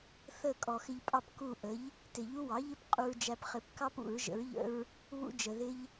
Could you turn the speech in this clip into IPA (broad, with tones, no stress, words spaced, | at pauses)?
θə˥˨ kʼɔ˨xɪ˦ʎpʼɑ˦p ku˥˨ ʔə˩˥ʎ | tɪ˨˩˦ʎu˦wɑ˩˥ʎɪ˦p qʼu˦ɹd͡ʒæ˦p χɪ˨pkɑ˦p ṵ˨˩˦ɹʒə̰˩˥ɹʎə̰˦ɹ | βṵ˦d͡ʒə˨ðɪ˦ʎ